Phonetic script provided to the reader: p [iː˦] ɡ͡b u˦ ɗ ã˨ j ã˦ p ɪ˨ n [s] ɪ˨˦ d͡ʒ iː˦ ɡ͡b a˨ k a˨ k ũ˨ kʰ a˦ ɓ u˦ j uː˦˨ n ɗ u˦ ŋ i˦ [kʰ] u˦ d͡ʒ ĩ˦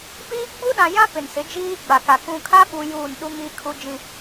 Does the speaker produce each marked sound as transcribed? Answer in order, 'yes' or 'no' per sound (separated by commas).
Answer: yes, yes, yes